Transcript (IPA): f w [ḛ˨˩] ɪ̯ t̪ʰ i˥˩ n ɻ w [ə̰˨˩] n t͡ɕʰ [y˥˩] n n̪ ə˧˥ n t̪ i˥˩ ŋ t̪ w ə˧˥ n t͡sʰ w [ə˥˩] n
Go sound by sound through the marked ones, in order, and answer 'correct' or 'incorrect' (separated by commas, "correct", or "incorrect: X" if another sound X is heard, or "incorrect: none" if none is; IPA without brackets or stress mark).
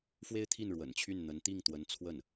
incorrect: e˥, correct, correct, correct